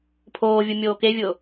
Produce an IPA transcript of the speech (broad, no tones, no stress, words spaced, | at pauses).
pʰoːvʲu mʲoːkevʲʊː